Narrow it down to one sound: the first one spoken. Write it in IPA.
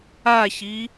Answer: a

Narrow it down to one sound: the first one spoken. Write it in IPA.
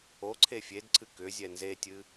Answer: o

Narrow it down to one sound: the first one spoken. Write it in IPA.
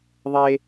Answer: ðˤ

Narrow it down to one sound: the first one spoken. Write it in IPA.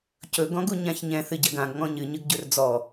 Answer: c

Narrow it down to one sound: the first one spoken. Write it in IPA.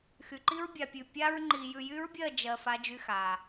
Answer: x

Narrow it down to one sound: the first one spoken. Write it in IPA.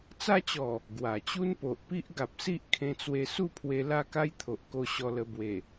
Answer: t͡s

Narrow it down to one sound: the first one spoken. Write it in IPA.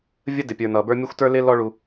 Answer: vʲ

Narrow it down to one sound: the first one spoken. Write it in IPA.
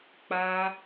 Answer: k͡p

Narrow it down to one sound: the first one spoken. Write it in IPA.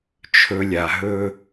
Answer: t͡ʃʰ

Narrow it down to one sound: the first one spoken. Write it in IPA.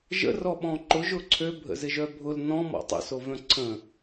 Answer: ʒ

